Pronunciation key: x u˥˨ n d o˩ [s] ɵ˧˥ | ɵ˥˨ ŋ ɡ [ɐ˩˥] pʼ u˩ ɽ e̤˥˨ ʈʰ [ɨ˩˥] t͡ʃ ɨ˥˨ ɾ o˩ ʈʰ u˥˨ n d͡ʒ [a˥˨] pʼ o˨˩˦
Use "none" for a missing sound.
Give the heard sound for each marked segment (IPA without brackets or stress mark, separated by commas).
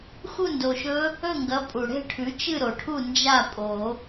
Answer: ʃ, ɐ˩˥, ʉ˩˥, a˥˨